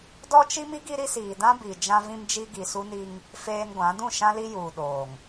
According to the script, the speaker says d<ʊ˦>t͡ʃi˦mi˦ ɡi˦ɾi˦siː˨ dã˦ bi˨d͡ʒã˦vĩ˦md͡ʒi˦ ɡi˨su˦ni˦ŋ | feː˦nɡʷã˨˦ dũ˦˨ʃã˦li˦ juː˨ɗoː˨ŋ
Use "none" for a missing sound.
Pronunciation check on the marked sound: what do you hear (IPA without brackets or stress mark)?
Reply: ɔ˦